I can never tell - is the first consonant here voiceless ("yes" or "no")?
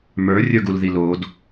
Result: no